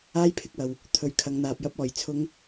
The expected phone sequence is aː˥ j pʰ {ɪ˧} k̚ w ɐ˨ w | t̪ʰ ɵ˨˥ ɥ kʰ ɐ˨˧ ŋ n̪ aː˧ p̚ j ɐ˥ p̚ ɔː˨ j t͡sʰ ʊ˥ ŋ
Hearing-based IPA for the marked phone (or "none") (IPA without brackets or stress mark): ɪ˧